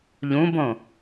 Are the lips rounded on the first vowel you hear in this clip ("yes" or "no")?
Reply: yes